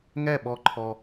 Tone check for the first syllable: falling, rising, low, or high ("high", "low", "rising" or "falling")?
falling